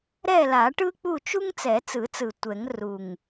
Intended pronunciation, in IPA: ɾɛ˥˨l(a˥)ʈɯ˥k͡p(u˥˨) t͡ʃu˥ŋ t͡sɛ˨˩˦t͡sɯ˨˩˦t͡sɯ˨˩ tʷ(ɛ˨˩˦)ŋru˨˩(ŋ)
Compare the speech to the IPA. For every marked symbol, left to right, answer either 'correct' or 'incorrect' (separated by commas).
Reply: incorrect, correct, correct, correct